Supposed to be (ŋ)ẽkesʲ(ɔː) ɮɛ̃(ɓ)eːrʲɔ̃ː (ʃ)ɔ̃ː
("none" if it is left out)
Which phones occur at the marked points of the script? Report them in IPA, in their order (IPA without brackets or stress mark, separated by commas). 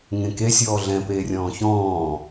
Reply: ŋ, ɔː, p, ç